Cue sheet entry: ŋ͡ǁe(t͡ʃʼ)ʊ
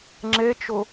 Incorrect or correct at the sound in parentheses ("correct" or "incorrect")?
incorrect